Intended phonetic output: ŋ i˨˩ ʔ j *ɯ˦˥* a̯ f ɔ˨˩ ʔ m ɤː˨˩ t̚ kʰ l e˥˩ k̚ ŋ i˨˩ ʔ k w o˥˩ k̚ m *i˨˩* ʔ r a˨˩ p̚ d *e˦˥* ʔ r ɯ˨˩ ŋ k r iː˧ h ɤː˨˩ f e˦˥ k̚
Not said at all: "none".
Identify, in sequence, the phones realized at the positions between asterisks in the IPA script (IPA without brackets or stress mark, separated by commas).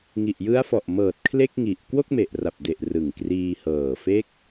ɯ˦˥, e˨˩, e˨˩